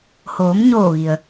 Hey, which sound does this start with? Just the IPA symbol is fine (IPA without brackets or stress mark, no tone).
h